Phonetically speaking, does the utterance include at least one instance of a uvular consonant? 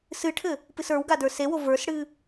no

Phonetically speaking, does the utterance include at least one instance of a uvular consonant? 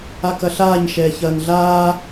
no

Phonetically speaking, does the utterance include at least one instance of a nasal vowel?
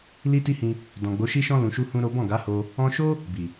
yes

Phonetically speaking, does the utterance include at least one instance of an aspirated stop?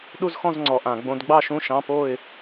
no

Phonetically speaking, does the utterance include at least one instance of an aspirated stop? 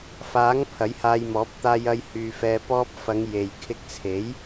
yes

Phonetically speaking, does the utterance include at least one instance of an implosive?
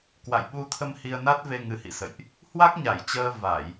yes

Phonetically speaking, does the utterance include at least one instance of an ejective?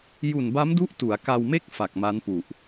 no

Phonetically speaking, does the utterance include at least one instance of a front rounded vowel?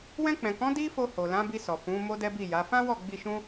no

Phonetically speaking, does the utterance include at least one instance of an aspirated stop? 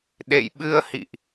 no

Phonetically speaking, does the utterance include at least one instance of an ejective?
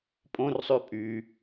yes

